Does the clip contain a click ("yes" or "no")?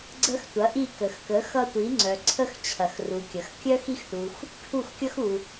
yes